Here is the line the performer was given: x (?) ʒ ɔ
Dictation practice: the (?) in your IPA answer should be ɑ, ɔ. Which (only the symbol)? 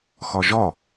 ɔ